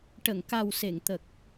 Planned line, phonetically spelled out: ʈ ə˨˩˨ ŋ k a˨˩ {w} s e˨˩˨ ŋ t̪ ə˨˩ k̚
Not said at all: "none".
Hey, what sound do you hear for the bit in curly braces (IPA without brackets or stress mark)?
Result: w